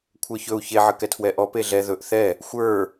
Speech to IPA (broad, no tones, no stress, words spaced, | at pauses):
kʷʰə˞çɵu̯ çeʕə kɛtʰwɛʔɔ peɮɛ ðɵʔ θɛ | xʷə˞